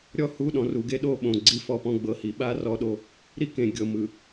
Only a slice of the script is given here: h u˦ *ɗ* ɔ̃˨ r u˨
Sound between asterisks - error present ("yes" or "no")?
no